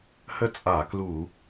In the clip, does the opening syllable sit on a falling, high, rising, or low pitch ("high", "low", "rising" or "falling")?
falling